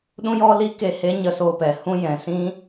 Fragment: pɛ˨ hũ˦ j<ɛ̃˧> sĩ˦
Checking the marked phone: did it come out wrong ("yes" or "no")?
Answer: yes